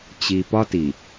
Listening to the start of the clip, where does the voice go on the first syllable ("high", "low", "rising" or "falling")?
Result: low